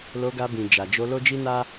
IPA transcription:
l o˧ ɡ a˧ b ĩ˨ d͡ʒ a˨ d͡ʒ o˧ l o˦ d͡ʒ i˦ n a˦

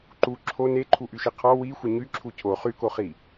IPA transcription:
ǃ u ǁʰ o n e ǃʰ u ʔ y ʃ i qʰ ɔ w i xʷ ə ɲ y ǁʰ u cʰ o χ y k o χ i

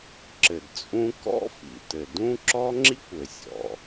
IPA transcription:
ǁ ɘ˩ d t͡sʼ ũ˥ k ɔ̰˥ f ḭ˩ t ɘ˩ d ũ˥ ǁ ɔ˥ ŋ͡ǁ i˥ kʷ ɘ˩ sʲ ɔ̰˩

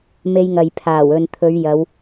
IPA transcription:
m e˧ j ŋ ɐ˨ j pʰ aː˨˩ w ɵ˨ n t̪ʰ ɵ˨˧ ɥ j ɐ˨˧ w

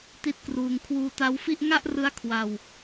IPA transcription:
t i˥˩ t̚ k r uː˧ ŋ kʰ w uː˧ t a˦˥ w f i˥˩ ʔ ŋ a˥˩ ʔ r ɯ˦˥ a̯ kʰ w a˧ w

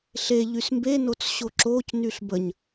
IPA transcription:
ɬ e ʎ y s m b e n o t͡s ɕ o ǁ o c n y ɬ b ə ɲ

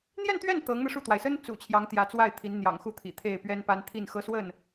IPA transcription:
n̪ j ɛ˥˧ n t̪ ɥ ɛ˥˩ n t̪ ɤ˧˥ ŋ n̪ ɤ˧ ʂ u˥˩ t̪ w a˩ ɪ̯ s ə˥ n t͡s ṵ˨˩ t͡ɕʰ j ɑ˧˥ ŋ t̪ j ä˧˥ t͡s w a˥˩ ɪ̯ t̪ʰ i˧˥ n n̪ j ɑ̰˨˩ ŋ x u˥˩ t̪ʰ ḭ˨˩ t̪ʰ e˥˩ ɪ̯ p ɥ ɛ˥ n p a˥ n t̪ʰ i˥˩ n x ɤ˥ s w ə˥˩ n

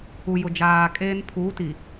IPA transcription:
u˨ j ʊ˨ d͡ʒ aː˨ kʼ eː˦ n pʰ uː˨˦ t i˨

